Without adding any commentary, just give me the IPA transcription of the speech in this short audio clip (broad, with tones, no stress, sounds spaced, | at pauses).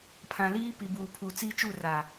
pʰ ã˨ l iː˦ p i˨ b uː˨ pʰ u˨ t͡s i˦ t͡ʃ u˦˨ r a˨